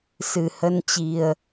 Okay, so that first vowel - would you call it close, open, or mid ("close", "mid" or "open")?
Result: close